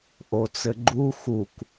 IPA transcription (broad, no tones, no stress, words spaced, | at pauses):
ʔot͡sɘɡ͡ǃu xuk